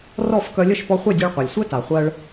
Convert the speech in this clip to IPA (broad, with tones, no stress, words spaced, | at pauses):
rɔ˥˩f kœ˧lʲə˥˩ʃpɔ˧ χʷe˥˩dʲe˧ɭqʷa˩lʲ sʷœ˥ta˩ χʷɜ˧ɭ